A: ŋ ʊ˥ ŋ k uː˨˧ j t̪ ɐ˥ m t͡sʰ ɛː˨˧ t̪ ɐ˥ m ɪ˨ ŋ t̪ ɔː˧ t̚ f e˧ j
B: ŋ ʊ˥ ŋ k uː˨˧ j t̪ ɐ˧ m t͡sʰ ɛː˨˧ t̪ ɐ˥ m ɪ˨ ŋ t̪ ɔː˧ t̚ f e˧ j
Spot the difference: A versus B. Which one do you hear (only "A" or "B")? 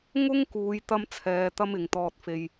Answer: A